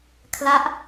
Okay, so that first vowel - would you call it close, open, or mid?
open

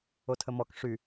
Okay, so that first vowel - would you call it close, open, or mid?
mid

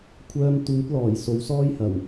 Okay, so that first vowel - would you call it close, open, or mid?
mid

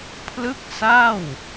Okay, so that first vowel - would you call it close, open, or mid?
close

